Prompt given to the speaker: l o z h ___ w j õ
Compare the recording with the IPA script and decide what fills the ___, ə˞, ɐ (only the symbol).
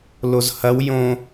ɐ